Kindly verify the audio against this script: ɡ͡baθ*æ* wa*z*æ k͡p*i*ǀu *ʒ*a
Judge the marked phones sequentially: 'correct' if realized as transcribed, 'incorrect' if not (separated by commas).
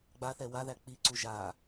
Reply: incorrect, incorrect, correct, correct